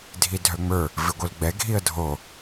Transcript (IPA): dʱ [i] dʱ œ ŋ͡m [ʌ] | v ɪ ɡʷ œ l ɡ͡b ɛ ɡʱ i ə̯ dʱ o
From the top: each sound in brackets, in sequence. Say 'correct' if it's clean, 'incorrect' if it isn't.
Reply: correct, incorrect

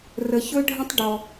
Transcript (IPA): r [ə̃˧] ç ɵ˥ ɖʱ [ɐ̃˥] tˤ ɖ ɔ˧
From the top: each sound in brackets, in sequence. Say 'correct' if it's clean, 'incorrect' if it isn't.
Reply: incorrect, incorrect

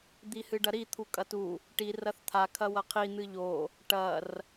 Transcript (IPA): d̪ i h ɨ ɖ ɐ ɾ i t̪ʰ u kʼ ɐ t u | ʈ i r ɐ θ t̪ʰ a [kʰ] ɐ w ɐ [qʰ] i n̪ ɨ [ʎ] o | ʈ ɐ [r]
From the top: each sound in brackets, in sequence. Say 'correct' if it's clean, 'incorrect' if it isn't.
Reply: correct, correct, correct, correct

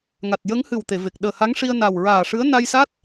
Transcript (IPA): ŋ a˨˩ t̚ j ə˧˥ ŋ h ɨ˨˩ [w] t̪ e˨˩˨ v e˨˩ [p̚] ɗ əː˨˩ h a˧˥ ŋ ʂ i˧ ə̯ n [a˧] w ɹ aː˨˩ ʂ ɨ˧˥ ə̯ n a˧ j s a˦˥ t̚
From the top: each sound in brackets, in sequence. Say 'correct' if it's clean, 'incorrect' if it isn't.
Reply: correct, incorrect, incorrect

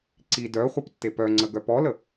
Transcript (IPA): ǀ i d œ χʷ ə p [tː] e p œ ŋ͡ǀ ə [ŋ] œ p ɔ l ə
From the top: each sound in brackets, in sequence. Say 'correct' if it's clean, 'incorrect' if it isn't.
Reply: correct, incorrect

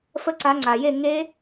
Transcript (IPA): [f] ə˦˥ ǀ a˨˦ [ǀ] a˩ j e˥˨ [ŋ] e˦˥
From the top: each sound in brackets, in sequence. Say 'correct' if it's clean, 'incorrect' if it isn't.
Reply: correct, incorrect, correct

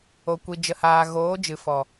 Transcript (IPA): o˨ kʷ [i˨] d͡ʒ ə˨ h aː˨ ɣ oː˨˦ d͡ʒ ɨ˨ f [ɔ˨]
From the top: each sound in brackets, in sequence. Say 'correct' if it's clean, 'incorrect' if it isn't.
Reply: correct, correct

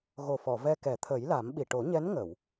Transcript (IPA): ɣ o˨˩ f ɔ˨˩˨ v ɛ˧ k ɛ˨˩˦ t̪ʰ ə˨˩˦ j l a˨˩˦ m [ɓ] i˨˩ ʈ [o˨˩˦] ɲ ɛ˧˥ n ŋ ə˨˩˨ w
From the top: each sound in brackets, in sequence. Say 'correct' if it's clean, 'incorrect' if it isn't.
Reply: correct, correct

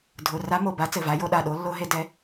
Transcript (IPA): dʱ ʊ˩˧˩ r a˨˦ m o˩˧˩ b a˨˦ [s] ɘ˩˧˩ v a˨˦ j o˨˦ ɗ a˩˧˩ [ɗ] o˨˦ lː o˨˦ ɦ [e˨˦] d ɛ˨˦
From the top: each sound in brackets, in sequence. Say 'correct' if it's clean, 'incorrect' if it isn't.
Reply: incorrect, correct, correct

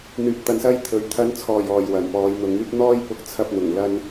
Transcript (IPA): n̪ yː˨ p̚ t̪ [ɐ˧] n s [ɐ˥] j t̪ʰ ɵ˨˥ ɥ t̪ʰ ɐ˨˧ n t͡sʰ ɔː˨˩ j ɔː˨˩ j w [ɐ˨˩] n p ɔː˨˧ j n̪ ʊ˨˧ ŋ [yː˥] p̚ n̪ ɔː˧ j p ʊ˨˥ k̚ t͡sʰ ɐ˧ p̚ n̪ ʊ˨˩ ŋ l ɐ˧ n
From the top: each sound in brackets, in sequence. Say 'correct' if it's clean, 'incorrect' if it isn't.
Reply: correct, correct, correct, correct

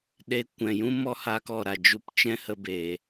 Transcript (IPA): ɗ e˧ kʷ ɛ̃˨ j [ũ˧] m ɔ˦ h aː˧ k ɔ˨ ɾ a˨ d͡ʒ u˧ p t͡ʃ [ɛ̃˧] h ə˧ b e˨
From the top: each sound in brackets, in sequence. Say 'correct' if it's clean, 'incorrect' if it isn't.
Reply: incorrect, incorrect

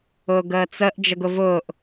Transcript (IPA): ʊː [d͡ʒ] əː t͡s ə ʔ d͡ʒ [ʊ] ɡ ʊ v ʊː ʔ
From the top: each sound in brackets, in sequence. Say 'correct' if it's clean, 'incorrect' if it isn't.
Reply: incorrect, incorrect

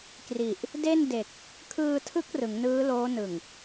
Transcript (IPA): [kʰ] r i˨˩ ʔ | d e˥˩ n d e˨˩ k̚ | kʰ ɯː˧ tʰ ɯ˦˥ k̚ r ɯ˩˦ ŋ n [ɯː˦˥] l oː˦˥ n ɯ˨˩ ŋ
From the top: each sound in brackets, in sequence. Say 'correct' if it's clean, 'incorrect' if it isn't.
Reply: incorrect, correct

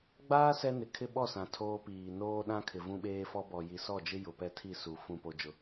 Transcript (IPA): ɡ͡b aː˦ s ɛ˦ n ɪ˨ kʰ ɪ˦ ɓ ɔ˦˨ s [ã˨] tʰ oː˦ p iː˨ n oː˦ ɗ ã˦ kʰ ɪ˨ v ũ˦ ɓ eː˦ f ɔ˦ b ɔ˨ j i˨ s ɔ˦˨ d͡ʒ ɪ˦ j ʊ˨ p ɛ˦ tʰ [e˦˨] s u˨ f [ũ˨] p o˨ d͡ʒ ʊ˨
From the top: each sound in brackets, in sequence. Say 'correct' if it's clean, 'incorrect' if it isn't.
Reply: correct, incorrect, correct

